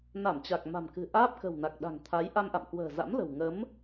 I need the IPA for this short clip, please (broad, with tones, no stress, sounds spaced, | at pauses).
n a˧˩ m t͡ɕ a˨˩ k̚ m a̤˨˩ m k ɨ̤˨˩ ʔ aː˦˥ p̚ k ə̤˨˩ w n a˨˩ k̚ ɗ a̤˨˩ ŋ t̪ʰ a˨˦ j ʔ a˧ m ʔ a̰˧˨ m k w ə̤ː˨˩ z a̰˧˥ m l ə̤˨˩ w ŋ ə˨˦ m